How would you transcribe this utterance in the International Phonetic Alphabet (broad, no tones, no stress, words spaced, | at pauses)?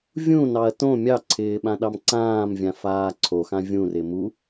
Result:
vʲũnɑɐ̯ tõ mʲɑǀʰɪː ɓãɗɑmǀãːmvʲã faːǀʰoxã vʲũrɪ mu